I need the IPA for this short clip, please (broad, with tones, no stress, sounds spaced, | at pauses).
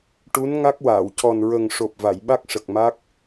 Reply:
ʈ u˧˥ n ŋ a˦˥ k̚ w aː˨˩˨ w c ɔ˨˩ n ɹ ə˨˩ ŋ ʂ o˨˩ p̚ v a˨˩˨ j ɓ a˦˥ k̚ ʂ ə˨˩ k̚ m a˦˥ k̚